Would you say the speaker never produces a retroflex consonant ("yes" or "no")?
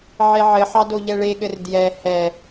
no